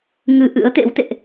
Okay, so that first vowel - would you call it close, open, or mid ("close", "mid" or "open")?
close